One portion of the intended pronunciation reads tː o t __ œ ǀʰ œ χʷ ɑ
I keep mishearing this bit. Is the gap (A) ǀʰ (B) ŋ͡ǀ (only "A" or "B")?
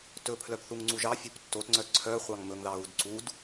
B